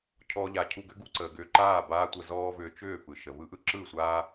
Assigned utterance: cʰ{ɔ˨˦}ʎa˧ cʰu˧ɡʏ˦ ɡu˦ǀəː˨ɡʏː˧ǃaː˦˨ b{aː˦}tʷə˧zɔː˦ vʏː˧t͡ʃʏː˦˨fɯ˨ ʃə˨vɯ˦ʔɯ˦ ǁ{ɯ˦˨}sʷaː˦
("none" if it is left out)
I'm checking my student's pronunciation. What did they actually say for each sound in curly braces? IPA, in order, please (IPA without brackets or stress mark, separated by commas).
ɔ˦, aː˦, ɯ˦˨